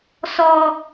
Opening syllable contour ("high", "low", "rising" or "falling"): high